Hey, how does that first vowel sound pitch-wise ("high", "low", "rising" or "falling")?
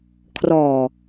low